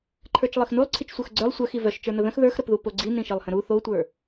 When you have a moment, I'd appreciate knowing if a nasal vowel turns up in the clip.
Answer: yes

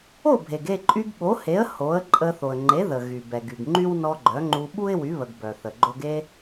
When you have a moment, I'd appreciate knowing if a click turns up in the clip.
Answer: yes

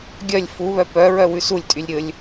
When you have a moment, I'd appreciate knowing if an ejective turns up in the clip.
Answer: yes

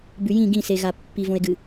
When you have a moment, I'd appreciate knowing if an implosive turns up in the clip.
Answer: no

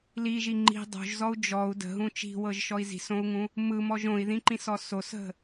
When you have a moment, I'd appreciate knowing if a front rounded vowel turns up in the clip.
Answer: no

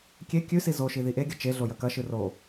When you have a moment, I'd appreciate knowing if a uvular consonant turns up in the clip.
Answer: no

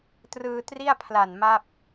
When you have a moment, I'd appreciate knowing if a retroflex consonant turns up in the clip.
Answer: no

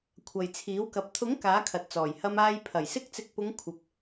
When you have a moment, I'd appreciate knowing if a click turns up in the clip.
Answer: no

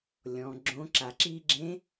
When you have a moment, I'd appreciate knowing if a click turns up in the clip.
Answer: yes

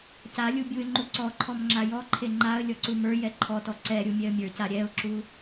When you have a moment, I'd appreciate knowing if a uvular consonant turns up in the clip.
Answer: no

